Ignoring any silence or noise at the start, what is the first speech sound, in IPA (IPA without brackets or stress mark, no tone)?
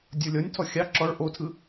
dʲ